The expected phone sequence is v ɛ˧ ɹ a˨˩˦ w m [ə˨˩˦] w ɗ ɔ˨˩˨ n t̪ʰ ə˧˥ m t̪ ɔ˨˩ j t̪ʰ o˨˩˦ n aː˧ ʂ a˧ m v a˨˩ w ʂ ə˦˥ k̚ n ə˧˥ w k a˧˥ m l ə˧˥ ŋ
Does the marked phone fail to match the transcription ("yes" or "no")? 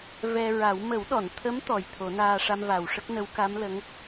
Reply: no